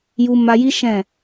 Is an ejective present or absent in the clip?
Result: absent